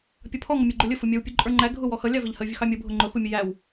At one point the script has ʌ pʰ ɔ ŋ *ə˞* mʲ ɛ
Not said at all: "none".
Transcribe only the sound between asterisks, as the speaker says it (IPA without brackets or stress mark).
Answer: ʌ